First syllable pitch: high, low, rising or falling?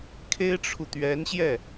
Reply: high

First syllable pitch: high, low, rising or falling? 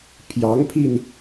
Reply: rising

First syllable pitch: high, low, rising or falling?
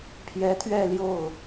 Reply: rising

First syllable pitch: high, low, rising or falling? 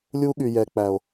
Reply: high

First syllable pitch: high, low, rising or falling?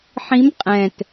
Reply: rising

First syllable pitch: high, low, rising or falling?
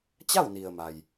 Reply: falling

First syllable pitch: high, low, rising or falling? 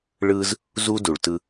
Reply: high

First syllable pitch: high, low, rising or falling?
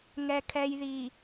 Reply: low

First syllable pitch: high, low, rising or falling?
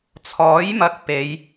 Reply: rising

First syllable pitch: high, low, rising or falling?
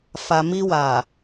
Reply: low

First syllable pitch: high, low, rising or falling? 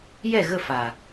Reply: falling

